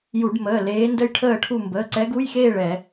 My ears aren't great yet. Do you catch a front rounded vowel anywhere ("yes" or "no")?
no